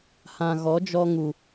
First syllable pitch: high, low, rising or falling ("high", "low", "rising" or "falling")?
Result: low